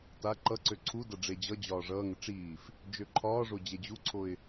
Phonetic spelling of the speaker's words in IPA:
t a ǃ ʌ ǀ ø ǀʰ u d ʌ ɖ͡ʐ e d͡ʑ ʌ d͡ʑ ɒː ʐ ʌː ŋ ə ʈ͡ʂ iː f | d͡ʒ ø ǃʰ ɒː ʐ o d͡ʑ e d͡ʑ u ǀʰ o ɪ̯

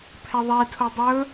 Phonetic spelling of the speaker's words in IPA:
pʰ ɛ ðˤ ɛ tʰ o dˤ ɵ

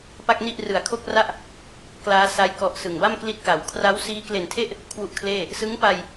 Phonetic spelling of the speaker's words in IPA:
p a˥˩ k̚ n i˥˩ ʔ r ɯ˨˩ a̯ kʰ o˥˩ k̚ r a˥˩ ʔ | k l aː˦˥ s a˦˥ j k ɔ˦˥ ʔ s ɯ˨˩ ŋ b a˥˩ m k l i˦˥ t̚ k a˩˦ w kʰ r a˦˥ w s iː˦˥ k l e˨˩ n tʰ e˥˩ ʔ | kʰ w u˥˩ ʔ kʰ l eː˥˩ | s ɯ˦˥ ŋ p a˧ j

